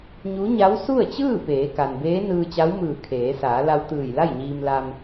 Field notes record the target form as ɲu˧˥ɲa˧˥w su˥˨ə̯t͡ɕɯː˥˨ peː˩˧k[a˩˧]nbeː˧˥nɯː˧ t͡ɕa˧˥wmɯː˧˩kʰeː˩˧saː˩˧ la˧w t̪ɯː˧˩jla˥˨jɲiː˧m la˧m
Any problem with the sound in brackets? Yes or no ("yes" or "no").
yes